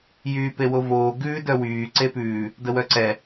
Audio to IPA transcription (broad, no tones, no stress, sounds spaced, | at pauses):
j yː p e w o v oː ɡ ʉː d œ w yː ǀ e p ʉː | d ə w œ ǀ ɛ